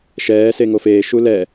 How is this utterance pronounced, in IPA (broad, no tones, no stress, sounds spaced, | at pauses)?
ʃ ɛː s e ŋ o f eː ʃ u l ɛ